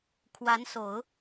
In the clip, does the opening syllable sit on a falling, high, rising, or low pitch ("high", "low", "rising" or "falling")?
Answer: rising